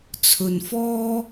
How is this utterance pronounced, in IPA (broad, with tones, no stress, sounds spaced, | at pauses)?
t͡sʰ ɵ˧ n f ɔː˥